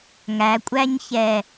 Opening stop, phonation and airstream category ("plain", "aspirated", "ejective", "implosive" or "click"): ejective